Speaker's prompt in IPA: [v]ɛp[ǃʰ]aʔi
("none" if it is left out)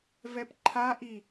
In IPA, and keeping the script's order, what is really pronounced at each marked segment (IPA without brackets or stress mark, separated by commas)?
v, ǃʰ